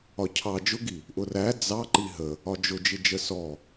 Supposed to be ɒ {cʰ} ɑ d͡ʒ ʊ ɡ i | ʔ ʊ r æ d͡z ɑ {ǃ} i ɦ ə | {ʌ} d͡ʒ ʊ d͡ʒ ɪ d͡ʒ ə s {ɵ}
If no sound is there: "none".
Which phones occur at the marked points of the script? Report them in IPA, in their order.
cʰ, ǃ, ɒ, ɔ

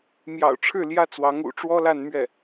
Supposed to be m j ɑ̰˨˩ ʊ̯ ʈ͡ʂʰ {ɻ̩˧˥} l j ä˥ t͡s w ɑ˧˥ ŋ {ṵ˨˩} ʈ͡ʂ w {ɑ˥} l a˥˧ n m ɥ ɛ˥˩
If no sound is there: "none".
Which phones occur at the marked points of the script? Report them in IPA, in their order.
ɻ̩˥˩, ṵ˨˩, ɔ˥

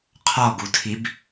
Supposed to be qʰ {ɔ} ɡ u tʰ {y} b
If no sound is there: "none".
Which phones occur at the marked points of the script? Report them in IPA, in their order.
ɔ, i

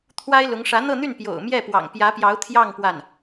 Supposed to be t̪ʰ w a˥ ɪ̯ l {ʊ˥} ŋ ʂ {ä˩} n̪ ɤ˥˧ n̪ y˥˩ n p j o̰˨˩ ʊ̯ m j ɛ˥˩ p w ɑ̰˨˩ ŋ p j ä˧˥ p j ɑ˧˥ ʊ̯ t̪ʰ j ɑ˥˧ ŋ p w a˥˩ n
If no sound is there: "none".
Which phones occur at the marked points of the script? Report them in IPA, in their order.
ʊ˧˥, ä˧˥

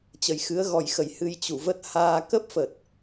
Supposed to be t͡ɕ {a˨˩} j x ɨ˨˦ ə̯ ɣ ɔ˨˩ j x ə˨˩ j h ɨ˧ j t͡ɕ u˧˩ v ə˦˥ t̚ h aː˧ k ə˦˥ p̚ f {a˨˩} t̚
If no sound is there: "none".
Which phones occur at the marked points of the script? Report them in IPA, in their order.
ə˨˩, ə˨˩

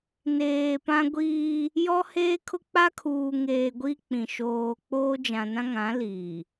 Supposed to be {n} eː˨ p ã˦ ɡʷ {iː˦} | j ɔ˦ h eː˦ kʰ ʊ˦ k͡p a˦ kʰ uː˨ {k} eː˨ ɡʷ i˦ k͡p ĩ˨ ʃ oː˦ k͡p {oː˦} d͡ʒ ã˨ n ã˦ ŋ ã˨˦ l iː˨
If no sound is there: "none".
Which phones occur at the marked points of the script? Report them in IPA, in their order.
n, iː˦, ŋ, oː˦

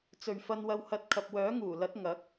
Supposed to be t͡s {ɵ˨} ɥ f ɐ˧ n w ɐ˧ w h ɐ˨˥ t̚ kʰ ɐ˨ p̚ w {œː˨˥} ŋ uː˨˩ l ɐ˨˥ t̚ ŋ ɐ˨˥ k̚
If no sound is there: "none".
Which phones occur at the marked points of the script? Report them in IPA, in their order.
ɵ˨, œː˨˥

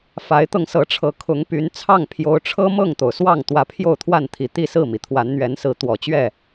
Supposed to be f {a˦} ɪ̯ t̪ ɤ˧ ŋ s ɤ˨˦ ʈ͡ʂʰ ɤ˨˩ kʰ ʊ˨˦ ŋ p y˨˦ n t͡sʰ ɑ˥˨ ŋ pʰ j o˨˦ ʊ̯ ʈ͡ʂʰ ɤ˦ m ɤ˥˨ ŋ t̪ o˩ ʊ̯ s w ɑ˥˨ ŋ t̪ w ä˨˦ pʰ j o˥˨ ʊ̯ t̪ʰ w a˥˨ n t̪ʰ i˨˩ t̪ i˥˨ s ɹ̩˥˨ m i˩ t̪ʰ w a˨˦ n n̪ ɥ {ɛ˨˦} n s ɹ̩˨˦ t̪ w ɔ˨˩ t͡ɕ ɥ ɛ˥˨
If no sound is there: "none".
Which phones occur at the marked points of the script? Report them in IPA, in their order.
a˨˦, ɛ˨˦

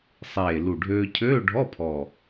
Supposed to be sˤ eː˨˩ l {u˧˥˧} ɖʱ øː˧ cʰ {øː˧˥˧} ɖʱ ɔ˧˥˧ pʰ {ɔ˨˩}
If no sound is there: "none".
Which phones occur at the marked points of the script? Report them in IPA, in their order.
u˨˩, øː˧˥˧, ɔ˨˩

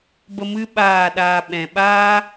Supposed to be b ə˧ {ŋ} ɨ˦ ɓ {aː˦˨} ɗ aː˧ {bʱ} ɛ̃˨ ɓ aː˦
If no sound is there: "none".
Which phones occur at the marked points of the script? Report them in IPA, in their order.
m, aː˦˨, ɓ

